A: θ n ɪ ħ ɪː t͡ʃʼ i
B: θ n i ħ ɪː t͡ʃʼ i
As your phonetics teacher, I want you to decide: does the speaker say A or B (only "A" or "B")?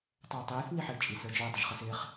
B